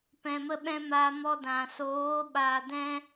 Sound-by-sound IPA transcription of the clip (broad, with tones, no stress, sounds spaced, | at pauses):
p ɛ̃˧ m ə˦ ɓ ɛ̃˦ m a˧ m ɔ˧ d ã˨ s oː˨˦ ɓ a˨ d ɛ̃˧